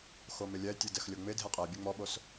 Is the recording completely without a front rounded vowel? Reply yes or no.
yes